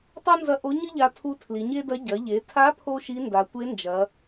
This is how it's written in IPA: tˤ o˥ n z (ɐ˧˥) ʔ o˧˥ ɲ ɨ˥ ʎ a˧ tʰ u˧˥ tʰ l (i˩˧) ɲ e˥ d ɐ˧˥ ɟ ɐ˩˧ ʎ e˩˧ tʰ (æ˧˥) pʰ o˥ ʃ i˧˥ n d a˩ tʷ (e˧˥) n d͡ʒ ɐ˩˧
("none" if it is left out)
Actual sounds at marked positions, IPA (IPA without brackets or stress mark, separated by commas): ɐ˧˥, i˩˧, a˧˥, e˧˥